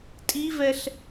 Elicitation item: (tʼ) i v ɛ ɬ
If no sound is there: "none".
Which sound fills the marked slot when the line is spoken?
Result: tʼ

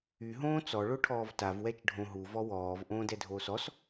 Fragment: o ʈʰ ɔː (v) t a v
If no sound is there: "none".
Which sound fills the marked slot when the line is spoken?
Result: v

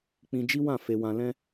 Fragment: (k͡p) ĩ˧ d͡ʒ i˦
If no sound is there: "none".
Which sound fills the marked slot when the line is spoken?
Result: k͡p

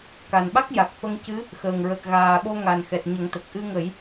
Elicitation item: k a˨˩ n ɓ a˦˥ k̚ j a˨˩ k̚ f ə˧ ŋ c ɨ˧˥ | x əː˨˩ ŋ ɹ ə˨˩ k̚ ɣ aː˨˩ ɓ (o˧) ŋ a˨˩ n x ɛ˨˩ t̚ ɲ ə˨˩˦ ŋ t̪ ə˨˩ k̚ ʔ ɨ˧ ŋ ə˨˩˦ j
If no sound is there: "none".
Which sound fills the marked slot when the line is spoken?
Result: o˧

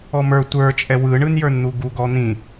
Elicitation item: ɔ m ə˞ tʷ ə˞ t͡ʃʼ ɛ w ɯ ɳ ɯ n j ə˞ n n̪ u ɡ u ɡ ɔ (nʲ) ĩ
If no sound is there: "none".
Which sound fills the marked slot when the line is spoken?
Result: n̪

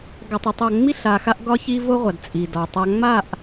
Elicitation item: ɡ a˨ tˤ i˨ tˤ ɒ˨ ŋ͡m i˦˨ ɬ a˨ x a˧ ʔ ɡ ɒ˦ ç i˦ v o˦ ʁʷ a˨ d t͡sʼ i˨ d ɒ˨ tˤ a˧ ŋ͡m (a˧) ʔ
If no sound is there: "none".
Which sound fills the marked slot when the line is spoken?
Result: a˦˨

